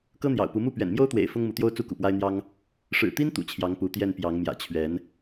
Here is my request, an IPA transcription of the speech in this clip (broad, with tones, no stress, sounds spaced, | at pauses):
k ɤ˦ n̪ j ɑ̰˨˩ ʊ̯ p u˨˦ m u˥˨ p ɥ ɛ̰˨˩ n m j o˦ ʊ̯ t̪ w ḛ˨˩ ɪ̯ f ʊ˦ ŋ m u˨˦ t̪ j o˦ ʊ̯ t͡s u˦ k ṵ˨˩ p w a˦ ɪ̯ n̪ j ɑ˦ ŋ | ʂ ɻ̩˨˩ t̪ i˦ n t̪ ṵ˨˩ t͡ɕʰ j ɑ˨˦ ŋ p u˨˦ t̪ j ɛ˥˨ n p j ɑ˨˦ ŋ m j ä̰˨˩ t͡ɕʰ ɥ ɛ˨˦ n